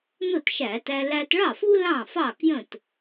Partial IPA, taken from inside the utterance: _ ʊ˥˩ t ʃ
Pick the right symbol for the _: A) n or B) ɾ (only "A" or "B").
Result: A